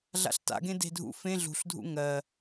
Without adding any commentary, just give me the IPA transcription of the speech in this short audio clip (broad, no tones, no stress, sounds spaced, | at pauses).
ɮ a̰ ɬ t a̰ ɡ ẽ d e̤ dʱ ṵ f ẽ ɮ ṳ ɬ dʱ ṵ ŋ ɜ